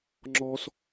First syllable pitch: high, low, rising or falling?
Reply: high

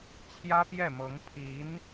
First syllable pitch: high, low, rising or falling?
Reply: high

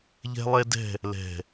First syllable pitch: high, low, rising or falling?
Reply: high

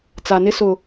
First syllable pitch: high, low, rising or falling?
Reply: low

